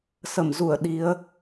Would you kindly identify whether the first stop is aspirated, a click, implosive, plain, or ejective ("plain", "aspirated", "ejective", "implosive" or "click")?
implosive